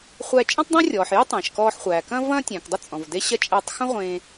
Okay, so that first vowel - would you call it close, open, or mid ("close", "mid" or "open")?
open